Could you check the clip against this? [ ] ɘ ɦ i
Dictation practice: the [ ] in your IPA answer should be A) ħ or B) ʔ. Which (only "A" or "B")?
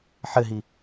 A